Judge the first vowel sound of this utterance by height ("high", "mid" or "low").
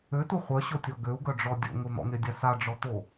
mid